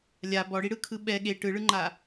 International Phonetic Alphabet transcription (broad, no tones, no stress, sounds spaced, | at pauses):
lʲ a b ɔ ɽ i ɽ ɯ kʰ ɯ ɓ ɛ ɠ e ʈ ɯ ɭ ɯ ŋ͡ǃ a